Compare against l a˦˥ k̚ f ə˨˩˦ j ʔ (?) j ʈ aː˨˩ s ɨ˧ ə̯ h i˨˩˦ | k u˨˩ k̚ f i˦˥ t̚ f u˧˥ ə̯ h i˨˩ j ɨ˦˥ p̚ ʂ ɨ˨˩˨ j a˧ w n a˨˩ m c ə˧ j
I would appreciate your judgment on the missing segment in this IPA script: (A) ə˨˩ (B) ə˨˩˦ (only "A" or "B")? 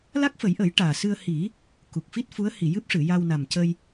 B